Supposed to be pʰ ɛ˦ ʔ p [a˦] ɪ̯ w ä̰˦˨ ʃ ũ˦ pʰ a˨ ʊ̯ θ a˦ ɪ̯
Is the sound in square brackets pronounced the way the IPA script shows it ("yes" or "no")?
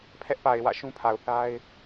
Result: no